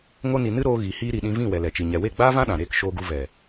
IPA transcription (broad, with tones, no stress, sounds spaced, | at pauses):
ŋ o˧ n i˨ n ɨ˦ ɾ oː˧ ɣ i˨ h iː˧ ɾ i˨ ɗ ĩ˧ v ĩ˦˨ w ɛ˨ l ɛ˨ t͡ʃ i˨ ɲ ɛ˨ w e˦˨ ɡ͡b aː˦ v ã˦ ɗ ã˨ ɾ eː˧ k ʃ oː˧ ɡ u˧ v ɛ˨